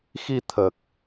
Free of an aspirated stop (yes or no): no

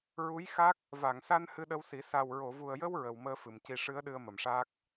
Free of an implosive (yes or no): no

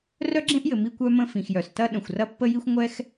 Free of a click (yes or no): no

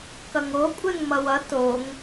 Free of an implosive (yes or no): yes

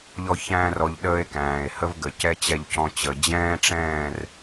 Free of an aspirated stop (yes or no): yes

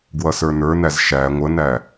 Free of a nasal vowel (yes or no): yes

